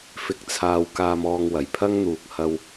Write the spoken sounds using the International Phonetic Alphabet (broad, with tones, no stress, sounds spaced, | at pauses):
f ɪ˨ k̚ t͡sʰ aː˨ w k aː˧ m ɔː˧ ŋ w ɐ˨˩ j pʰ ɐ˥ ŋ n̪ uː˨ k̚ h ɐ˧ w